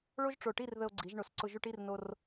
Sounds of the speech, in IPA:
ɭ o˥ ʒ ʈ͡ʂ o˧˩ ʈ i˥˧ r ð ə˧ o̯ ɡ͡ǀ i˩˧ ʒ ɳ o˩˧ s ǀ ʊ˧ ʒ u˧ ʈ i˥˧ r n o˧ r

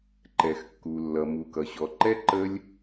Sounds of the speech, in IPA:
ǃ ɛ˨ x kː u˨ lː ʌ˨ m u˨ k ʌ˨ ɕ ɔ˨ ǃ ɛ˦ ǃ ə˦ lʲ

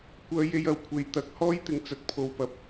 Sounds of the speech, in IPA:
kʷ œː˥ j e˥ j ɐ˨ w kʷʰ e˧ j t̪ ɐ˨˥ k̚ h ɔː˥ j t̪ ɪ˨ ŋ t͡s ɐ˨ t̚ pʰ o˨ w p ɐ˨ p̚

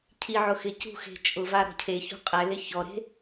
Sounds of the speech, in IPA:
cʰ i ʕ ʊ x ɪ c ṳ x e̤ t͡ʃʼ ʊ v a ɾ ɔ̤ cʰ e ç ṳ qʼ ɛ l ɪ ç ɔ ɾ e̤

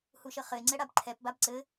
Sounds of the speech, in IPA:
h u ʃ ə χ ɘ ɪ̯ ŋ͡ǀ ɛ ɽ a b ǃʰ ɛ p b a b ǀ ɘ

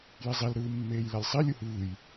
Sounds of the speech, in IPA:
j i zˤ i l ɾ ɯː mː eː j l a lʲ sˤ i lʲ u h ɯː j

